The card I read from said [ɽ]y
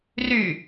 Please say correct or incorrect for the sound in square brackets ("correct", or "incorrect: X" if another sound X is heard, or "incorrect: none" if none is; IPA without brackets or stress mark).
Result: incorrect: r